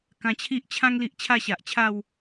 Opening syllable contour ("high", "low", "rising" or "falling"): low